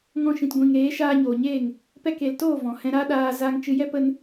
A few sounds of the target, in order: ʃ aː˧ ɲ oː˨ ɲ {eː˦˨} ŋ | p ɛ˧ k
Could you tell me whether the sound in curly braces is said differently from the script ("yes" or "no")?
no